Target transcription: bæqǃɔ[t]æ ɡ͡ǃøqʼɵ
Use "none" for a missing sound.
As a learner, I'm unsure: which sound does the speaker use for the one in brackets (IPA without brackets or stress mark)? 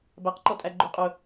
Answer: tʼ